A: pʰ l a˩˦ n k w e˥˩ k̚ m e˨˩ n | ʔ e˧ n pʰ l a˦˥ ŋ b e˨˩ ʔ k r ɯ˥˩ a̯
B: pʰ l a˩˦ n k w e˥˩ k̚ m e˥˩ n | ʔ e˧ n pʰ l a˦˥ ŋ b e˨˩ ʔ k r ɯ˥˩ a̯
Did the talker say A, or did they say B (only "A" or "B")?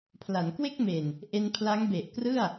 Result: A